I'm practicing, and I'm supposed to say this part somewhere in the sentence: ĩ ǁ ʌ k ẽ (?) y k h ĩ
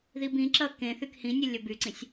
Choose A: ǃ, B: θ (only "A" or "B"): B